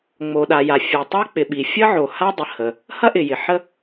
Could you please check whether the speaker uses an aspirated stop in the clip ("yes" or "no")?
no